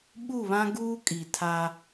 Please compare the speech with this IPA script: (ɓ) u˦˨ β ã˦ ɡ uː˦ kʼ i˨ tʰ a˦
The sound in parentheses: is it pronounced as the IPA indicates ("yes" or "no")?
yes